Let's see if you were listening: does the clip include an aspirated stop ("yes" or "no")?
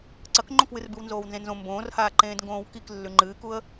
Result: no